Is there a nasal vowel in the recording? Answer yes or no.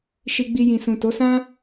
yes